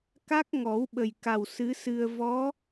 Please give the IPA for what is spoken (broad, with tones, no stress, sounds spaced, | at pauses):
k a˦˥ k̚ ŋ ɔ˨˩˦ w ɓ ə˨˩ j k a˨˩ w s ɨ˧˥ s ɨ˧ ə̯ v ɔ˧˥